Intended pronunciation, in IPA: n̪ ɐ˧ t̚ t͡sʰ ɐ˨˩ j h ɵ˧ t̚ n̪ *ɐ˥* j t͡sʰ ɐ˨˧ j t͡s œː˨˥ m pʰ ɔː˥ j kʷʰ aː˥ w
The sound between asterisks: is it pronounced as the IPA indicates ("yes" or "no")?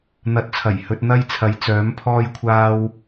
yes